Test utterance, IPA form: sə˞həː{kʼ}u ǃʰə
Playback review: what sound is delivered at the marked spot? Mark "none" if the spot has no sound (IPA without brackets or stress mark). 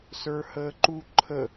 ǃ